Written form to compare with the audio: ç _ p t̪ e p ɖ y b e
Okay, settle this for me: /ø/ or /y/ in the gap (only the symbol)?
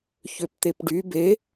ø